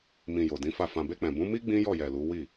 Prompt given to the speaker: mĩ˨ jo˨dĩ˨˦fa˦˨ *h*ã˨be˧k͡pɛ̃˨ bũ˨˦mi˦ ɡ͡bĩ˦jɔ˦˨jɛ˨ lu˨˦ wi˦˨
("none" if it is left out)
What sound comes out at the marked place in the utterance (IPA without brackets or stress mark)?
f